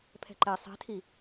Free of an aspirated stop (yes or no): no